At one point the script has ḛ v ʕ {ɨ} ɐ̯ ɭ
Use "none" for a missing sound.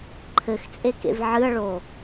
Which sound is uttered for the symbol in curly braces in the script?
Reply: ɨ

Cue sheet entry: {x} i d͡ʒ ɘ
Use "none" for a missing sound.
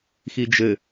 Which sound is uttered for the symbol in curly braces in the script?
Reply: x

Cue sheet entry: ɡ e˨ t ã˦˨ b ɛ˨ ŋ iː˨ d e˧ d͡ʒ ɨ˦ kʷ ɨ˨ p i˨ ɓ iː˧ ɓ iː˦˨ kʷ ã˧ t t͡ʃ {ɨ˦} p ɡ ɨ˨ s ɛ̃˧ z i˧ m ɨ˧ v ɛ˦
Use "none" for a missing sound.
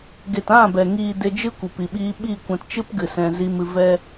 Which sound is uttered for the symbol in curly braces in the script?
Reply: ɨ˦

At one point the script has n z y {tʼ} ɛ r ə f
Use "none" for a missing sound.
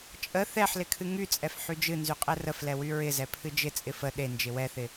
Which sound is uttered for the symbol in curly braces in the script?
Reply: qʼ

